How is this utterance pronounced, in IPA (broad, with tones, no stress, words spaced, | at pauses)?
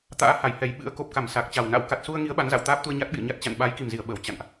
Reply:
t̪a̰ː˧˥ha˧˩j hɛ˨˩jɓɨ̰˧˥ə̯ ko˨˩p̚ka˧˩m sa˨˩k̚t͡ɕa˨˩wna̰˧˥w ka˨˩t̚su˧ə̯ŋi˨˦ə̯ ɓa˨˦nza̰˧˨w t̪aː˦˥p̚t̪u˧ə̯ ɲa˦˥t̚ɓḭ˧˨ə̯ɲa˦˥t̚ t͡ɕa̰˧˨nɓa˨˦j ki˨˩mzi˧˩ə̯ ɓəː˧˩w t͡ɕa̰˧˨nʔ